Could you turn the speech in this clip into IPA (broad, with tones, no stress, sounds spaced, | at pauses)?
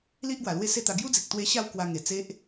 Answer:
l i˦ ʔ ɡ w a˨˩ l w e˥˧ s e˥˧ t̪ a˧ ɡ j u˦ d͡z i˨ k̚ t̪ w e˧ ɕ a˥˧ w k w a˧ ŋ e˨˩ t͡s e˦ ʔ